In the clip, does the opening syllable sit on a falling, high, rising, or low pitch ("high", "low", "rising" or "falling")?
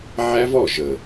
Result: high